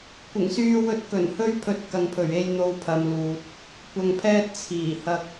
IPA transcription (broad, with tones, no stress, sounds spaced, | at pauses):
kʷ ɪ˨˩ ŋ s yː˧ w ɵ˧ t̚ k ɵ˨˩ n h ɵ˧ ɥ pʰ ɵ˧ t̚ k ɐ˨ ŋ pʰ ɵ˨˩ ɥ e˧ j n̪ o˧ w pʰ ɐ˨˧ m l uː˨ t̚ | kʷ ɐ˧ ŋ pʰ ɛː˥ t̚ t͡sʰ iː˨˩ h ɐ˧ k̚